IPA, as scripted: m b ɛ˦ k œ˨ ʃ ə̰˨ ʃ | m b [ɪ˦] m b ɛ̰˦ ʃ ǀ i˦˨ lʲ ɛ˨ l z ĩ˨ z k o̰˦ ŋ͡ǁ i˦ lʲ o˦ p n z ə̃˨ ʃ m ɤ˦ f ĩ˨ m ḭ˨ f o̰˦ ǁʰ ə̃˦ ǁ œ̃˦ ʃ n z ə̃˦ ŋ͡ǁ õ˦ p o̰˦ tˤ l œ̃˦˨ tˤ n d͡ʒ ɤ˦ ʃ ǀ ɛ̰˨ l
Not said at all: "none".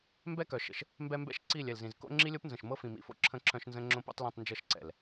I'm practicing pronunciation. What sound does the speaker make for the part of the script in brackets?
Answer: ɛ˦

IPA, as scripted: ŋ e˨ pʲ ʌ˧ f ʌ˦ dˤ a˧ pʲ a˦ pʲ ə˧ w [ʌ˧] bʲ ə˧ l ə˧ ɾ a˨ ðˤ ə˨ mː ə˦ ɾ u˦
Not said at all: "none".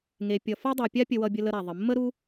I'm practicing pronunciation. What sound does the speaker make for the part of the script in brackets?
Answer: ʌ˧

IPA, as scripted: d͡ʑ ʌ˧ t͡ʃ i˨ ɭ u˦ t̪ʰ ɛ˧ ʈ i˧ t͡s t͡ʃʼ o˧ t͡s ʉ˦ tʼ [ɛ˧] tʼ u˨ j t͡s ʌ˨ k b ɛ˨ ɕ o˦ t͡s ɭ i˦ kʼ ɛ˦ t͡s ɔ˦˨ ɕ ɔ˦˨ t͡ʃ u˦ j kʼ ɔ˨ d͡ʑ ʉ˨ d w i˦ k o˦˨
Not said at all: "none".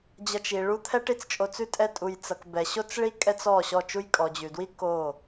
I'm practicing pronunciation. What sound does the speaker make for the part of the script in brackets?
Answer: ɛ˧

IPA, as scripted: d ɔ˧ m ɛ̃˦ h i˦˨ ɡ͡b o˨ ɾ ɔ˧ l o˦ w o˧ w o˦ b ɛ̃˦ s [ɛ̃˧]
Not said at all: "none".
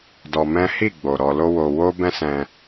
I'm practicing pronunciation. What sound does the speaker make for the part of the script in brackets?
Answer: ɛ̃˧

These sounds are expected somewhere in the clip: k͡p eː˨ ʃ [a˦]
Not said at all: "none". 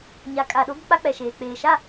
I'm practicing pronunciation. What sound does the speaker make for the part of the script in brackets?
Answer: a˦˨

